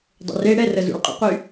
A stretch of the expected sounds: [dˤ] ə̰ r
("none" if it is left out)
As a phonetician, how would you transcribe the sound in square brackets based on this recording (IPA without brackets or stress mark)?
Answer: dˤ